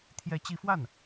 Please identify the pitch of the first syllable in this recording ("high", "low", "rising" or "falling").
rising